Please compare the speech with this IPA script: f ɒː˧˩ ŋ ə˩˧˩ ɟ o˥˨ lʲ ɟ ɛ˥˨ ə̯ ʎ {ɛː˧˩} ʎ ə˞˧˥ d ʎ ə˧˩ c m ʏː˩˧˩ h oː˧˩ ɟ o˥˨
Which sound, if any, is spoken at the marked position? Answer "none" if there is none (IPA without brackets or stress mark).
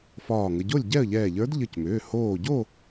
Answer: ɛː˧˩